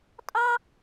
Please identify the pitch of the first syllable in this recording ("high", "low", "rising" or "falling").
high